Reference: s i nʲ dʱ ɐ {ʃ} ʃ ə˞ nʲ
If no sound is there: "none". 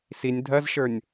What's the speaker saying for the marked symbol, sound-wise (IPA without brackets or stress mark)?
z